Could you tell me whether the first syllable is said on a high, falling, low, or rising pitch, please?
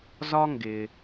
high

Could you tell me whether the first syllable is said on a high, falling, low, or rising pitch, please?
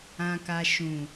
low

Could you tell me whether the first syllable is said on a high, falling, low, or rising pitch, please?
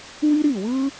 high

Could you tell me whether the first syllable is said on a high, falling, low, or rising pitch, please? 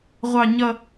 low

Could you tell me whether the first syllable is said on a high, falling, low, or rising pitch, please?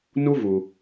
high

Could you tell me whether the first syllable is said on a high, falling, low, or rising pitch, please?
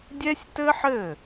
high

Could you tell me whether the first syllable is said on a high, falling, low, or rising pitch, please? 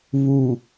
low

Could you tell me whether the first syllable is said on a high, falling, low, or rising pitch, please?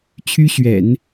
high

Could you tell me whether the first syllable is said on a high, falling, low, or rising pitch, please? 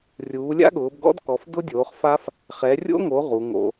rising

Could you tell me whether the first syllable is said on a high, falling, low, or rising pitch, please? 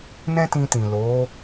high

